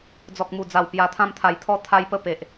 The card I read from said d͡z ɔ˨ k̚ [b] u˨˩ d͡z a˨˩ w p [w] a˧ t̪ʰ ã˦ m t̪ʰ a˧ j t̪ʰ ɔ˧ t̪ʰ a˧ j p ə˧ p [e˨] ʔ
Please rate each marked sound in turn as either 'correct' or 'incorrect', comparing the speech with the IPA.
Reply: incorrect, incorrect, correct

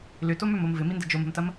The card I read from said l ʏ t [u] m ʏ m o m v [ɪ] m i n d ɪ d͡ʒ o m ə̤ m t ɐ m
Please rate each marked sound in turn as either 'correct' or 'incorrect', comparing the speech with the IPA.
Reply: incorrect, correct

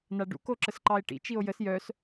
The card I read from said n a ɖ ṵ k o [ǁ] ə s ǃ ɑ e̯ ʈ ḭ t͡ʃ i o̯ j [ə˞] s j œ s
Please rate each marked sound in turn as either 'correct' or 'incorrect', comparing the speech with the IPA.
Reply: correct, incorrect

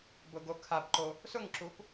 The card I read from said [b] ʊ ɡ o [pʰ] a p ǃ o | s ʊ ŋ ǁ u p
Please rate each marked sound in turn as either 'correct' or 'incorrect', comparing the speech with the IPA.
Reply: correct, incorrect

